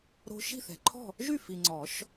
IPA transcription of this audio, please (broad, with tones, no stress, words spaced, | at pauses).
ɾo̤˦ ʃi̤˥˨θɛ̤˨ǃʰɔ̤˥˨ | ʒy˥˨fi˨ŋ͡ǀɔ˨˩˦ʃ